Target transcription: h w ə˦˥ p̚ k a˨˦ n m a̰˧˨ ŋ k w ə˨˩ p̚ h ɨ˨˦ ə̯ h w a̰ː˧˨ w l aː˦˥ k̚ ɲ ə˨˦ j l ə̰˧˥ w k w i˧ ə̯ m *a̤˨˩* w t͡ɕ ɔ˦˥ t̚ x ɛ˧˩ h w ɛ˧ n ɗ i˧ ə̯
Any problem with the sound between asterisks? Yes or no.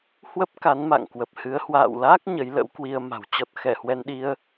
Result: no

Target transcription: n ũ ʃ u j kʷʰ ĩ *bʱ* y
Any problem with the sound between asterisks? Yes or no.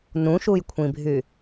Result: no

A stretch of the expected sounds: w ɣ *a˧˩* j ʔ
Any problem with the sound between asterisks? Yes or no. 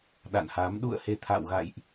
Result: yes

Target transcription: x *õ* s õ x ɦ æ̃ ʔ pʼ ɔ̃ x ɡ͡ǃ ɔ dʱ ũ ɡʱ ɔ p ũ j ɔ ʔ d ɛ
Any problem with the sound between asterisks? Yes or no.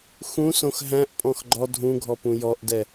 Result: yes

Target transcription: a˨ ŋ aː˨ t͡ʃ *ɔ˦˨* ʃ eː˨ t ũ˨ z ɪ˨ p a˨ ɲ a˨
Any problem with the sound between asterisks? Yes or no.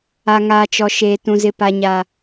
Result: yes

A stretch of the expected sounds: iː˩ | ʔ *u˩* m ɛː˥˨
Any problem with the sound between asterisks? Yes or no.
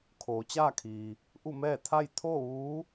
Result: yes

